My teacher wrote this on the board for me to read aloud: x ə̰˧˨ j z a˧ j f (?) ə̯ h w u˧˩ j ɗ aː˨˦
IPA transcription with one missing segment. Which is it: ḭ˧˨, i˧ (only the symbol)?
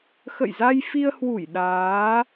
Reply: i˧